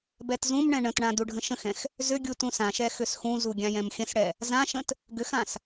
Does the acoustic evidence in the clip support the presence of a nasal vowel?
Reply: yes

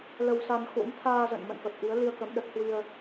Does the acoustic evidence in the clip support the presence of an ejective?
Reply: no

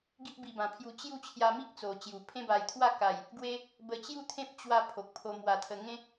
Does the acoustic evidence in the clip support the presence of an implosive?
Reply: no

